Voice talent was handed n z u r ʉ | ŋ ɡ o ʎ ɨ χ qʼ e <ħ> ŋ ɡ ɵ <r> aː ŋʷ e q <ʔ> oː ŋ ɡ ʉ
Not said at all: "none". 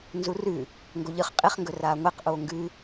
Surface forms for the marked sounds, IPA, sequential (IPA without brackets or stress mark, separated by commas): χ, r, ʔ